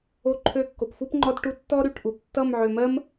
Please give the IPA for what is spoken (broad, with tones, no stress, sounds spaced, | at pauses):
o˥ ǃʰ ø˥ kː o˧ p f u˥ p ŋ͡ǃ ɔ˥ d ʈ u˥˧ tː ɔ˥ ɾ y˨˩˦ ʈ ʔ u˨˥ p tː ʌ˥˧ m ʕ ø˧ m ɜ˥ m